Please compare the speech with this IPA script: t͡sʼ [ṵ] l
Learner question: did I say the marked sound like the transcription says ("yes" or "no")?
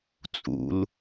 yes